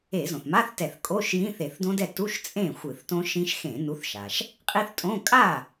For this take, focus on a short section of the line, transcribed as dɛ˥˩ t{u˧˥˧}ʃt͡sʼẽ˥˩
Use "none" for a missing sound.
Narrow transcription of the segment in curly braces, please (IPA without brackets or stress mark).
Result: u˧˥˧